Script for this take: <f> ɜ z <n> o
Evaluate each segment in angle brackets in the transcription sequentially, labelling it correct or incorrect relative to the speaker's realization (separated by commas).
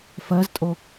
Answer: correct, incorrect